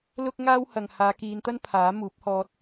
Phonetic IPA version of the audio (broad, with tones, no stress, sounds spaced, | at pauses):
l ʊ˥ k̚ ŋ aː˥ w h ɐ˨ ŋ h aː˨˧ k iː˨˧ n t̪ ɐ˥ n pʰ aː˨˥ m uː˨˥ p̚ h ɔː˧ t̚